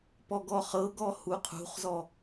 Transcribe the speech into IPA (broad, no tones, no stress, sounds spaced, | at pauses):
p ɔ ɡ ɔ χ ɤ ɡ ɔ h u qʰ ṳ χ z ɔ